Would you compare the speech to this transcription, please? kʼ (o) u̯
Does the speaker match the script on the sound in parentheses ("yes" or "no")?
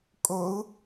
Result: yes